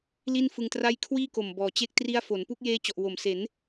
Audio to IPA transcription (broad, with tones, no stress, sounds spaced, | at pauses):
l i˥˩ n f ɯ˧ ŋ t r a˥˩ j kʰ w iː˥˩ k o˨˩ m b ɔː˨˩ t͡ɕ e˥˩ k̚ t r i˦˥ a̯ f o˩˦ n p u˥˩ k̚ j eː˦˥ t͡ɕ ɔ˨˩ ʔ w o˨˩ m s e˩˦ n